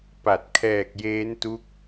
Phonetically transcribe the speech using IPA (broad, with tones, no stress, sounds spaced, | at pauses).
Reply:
p a˨˩ t̚ kʰ ɛː˨˩ k̚ j eː˦˥ n t u˦˥ k̚